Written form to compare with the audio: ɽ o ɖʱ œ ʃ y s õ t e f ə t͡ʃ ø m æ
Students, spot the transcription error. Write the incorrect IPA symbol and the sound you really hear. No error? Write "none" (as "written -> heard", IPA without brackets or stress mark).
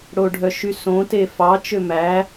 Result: ə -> ɑ